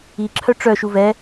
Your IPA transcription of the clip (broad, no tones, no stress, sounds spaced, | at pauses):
i ǁʰ œ ʈ͡ʂ œ ʃ u v ɛ